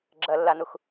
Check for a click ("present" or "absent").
present